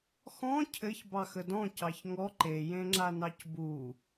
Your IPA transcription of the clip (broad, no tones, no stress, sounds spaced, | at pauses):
x ɔ̃ cʰ ɘ ç b ɑ x ə d ɔ̃ c ɑ ç ŋ ɔ ǃ e j ẽ ŋ͡ǁ a n ɑ c b u